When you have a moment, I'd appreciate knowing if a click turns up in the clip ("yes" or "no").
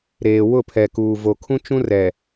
no